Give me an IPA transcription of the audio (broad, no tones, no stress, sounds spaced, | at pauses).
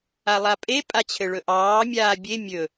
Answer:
a lˠ a pʼ e pʼ a t͡ɕʰ ɘ ɭ ɵ ʔ ɑː mʲ aː bʲ e mʲ ɵ